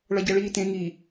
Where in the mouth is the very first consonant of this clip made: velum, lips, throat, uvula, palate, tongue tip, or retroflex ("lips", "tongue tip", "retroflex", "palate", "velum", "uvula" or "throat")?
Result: retroflex